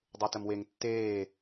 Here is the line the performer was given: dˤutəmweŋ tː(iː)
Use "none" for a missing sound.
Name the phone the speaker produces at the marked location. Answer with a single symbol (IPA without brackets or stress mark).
eː